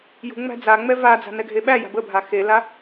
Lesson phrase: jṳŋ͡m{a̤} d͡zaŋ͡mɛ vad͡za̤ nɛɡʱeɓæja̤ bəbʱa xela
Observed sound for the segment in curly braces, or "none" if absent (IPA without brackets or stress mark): æ̤